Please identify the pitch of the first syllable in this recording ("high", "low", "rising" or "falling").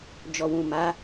low